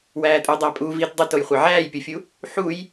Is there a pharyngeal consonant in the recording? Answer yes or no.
yes